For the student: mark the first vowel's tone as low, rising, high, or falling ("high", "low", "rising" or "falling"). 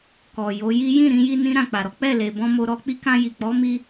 low